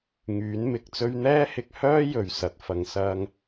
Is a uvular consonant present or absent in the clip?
absent